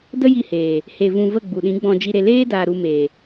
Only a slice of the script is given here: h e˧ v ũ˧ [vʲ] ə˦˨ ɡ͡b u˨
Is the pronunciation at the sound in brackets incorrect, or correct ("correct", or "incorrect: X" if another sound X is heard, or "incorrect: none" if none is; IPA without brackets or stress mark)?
incorrect: v